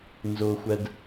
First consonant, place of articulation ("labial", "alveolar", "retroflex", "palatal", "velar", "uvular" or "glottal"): alveolar